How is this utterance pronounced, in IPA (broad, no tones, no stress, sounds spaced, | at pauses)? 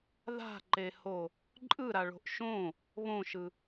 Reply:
ð a̤ ǃ e h o | ǃʼ ɯ ɾ a ɭ o̤ ʔ ʃ õ | β õ ʃ ɯ